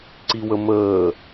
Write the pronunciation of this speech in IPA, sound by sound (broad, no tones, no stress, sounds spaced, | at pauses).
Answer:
ǀ i w ə m əː